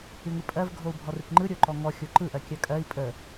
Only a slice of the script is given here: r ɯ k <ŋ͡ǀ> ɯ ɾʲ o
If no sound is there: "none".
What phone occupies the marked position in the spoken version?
ŋ͡ǃ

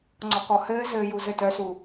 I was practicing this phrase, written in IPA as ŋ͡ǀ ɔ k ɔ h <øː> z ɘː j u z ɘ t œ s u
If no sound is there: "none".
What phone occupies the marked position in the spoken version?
ɘː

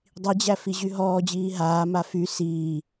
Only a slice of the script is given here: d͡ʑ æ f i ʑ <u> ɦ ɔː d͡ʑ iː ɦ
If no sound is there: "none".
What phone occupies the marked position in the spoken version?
y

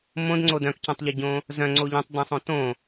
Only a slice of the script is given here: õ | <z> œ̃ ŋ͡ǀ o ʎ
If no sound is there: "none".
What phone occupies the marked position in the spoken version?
z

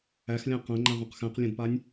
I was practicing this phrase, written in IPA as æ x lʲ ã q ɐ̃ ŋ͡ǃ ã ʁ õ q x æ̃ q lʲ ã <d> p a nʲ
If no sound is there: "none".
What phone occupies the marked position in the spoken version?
d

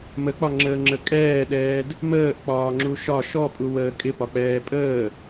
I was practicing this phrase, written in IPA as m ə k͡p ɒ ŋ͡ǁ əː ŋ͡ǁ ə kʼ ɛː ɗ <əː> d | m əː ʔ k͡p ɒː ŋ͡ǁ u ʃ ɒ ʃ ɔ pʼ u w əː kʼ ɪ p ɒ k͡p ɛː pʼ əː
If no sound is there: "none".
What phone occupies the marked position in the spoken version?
ɛː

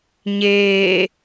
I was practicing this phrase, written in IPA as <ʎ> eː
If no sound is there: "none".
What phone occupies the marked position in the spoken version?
ɲ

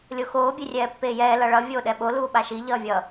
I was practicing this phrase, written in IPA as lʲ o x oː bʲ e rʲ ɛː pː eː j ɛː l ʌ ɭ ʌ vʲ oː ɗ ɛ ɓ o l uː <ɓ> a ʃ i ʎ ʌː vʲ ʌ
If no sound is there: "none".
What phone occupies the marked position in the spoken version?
ɓ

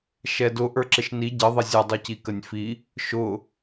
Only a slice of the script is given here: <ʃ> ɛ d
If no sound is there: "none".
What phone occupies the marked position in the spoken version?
ʃ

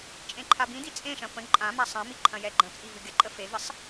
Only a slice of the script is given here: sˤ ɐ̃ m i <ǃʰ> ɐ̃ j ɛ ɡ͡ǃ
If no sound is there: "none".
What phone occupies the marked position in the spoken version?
ǃʰ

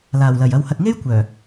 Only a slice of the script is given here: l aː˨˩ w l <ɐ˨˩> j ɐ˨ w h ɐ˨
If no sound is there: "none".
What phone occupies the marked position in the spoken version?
ɐ˨˩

